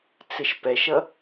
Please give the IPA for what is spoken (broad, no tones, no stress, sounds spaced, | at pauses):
t͡s ɪ ʃ p ɛ ʃ ʌ